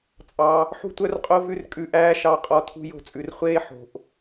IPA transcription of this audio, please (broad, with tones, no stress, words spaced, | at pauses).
t͡sʼɑ˦ | ħṳ˦tʷœ˦rqʼo˦ vʉ˦rkʼʉ˧ʔæː˦ ʃɑ˦ qʼɔ˦˨tʰṳ˦jo̤˦t͡sʼʉ˧r χʷeː˦ ħo̤˨ʔ